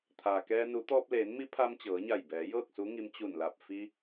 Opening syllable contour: low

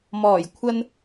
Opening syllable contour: low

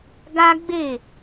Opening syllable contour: high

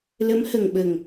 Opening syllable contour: rising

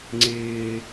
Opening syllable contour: low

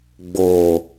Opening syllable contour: low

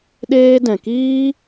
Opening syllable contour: high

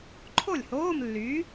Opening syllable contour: falling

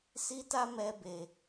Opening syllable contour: high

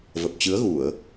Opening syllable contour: low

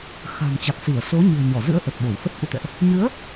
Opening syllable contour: low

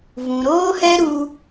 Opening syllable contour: low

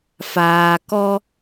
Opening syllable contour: low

